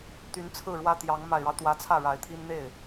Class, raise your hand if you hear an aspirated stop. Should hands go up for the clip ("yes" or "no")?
yes